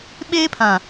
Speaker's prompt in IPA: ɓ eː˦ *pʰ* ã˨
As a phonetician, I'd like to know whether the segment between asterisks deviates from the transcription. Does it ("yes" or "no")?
no